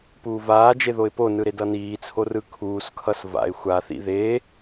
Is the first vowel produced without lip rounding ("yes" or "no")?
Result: no